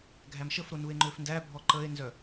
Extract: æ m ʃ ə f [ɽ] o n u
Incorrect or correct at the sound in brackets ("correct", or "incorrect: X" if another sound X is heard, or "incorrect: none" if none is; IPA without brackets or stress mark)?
incorrect: ɾ